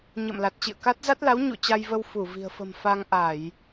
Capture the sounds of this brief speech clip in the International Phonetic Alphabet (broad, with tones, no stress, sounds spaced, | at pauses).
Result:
ɲ ə̰ː˧˨ m l a˨˩ t̚ t͡ɕ ḭ˧˨ ə̯ k a˦˥ t̚ z a˦˥ t̚ l a˨˦ w ɲ ṵ˧˨ t͡ɕ a˧ j v ə˧ w f u˧˩ v i̤˨˩ ə̯ f ə̤˨˩ m f a˧ ŋ ʔ a˧˩˨ j